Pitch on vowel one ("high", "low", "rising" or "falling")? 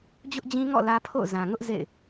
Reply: high